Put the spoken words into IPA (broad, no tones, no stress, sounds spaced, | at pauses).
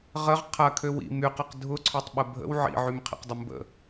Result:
ʁ ə ʁ qʰ ɐ kʰ ø w ḭ m y q ɐ q dʱ ʊ ǀʰ ø tˤ ɓ ə bʱ ə̰ w ʕ ḭ ʕ y m qʰ ḭ q dˤ ə m b ə̰